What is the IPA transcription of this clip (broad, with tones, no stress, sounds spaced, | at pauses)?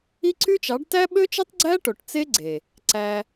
i˦ ǀ y˦ t͡ʃ ɑ˨˦ ɖ t æ˦ ɓ ø˦ t͡ʃ ɯ˦ tˤ ɡ͡ǀ æ˦ ʈ o˨ ʈ t͡s e˦ ɡ͡ǀ e˨ | ǀ æ˧